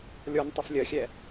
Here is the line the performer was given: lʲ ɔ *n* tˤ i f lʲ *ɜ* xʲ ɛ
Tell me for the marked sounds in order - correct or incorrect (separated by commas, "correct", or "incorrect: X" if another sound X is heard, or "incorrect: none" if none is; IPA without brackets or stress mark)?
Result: correct, correct